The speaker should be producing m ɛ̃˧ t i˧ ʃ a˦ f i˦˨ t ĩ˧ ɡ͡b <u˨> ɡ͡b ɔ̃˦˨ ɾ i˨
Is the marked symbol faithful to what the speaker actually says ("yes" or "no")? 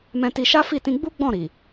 no